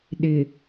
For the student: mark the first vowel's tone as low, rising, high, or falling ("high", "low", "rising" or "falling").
low